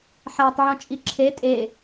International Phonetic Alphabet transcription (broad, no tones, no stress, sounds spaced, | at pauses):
ħ æ tˤ ʕ õ t͡ʃʼ i ǁʰ e tʼ e